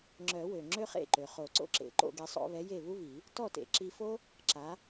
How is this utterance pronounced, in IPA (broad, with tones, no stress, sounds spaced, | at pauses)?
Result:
ŋ͡ǁ œ˨˩˦ w ø˩ ŋ͡ǁ ø˥ χ ḛ˥˩ ǃ ø˩ χ o˨˩˦ ǀ o̰˥ ǁ ḛ˨˥ ǃ o̰˥˩ ɡ e˧ sˤ o̰˧ β ɛ˨˥ j e˥˩ β u˥ β i˨˩˦ | t ɔ˥˩ t ḛ˨˩˦ ǁ i˧ f o˥ | ǁ a˨˥